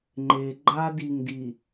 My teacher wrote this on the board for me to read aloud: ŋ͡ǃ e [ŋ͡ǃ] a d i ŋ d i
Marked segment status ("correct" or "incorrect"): incorrect